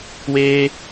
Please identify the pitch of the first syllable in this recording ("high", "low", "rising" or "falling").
high